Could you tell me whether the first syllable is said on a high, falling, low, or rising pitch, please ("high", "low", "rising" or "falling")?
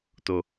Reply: high